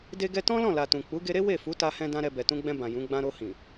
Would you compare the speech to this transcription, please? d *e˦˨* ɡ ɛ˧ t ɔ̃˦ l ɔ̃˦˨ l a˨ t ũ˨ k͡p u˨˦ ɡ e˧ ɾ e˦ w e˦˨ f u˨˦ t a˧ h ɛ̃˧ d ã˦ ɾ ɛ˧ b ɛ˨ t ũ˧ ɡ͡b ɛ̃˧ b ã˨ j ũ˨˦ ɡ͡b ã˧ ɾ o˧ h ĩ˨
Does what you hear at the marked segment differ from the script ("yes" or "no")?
yes